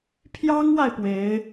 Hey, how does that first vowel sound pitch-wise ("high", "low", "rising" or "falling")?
high